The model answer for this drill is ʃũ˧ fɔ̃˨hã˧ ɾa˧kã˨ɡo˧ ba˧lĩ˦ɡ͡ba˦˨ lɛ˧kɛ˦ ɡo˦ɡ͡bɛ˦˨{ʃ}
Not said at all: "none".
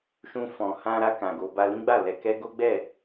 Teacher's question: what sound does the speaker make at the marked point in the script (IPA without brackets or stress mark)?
none